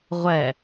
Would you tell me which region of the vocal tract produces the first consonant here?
uvula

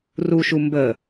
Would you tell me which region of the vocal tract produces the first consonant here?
tongue tip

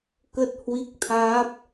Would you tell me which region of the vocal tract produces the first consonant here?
velum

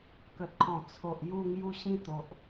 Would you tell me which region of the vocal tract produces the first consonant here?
velum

